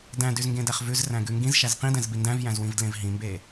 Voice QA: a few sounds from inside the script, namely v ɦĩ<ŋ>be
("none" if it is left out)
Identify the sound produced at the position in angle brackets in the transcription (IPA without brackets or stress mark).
m